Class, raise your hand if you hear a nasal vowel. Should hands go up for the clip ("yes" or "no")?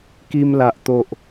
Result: no